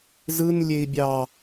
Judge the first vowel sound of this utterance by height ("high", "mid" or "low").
high